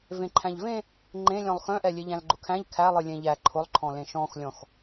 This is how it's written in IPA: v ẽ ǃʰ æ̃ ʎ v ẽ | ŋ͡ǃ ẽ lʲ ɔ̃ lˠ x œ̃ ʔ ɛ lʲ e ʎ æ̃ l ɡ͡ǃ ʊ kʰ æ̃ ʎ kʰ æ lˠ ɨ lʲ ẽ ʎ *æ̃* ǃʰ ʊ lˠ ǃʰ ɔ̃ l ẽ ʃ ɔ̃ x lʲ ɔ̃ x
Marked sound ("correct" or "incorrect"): incorrect